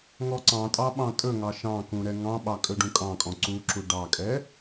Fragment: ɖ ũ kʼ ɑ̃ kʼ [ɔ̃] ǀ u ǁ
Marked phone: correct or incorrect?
correct